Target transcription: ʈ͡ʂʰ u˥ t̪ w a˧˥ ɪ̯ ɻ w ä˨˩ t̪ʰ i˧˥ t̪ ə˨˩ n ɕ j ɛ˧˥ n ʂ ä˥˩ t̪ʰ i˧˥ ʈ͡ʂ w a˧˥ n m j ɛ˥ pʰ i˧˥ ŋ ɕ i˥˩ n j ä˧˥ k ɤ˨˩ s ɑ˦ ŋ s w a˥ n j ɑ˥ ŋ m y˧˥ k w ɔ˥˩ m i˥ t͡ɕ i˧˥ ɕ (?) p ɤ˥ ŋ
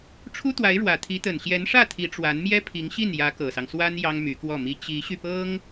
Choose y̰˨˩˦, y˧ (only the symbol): y˧